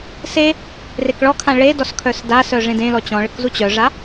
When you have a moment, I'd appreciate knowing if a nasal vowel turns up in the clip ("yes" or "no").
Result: yes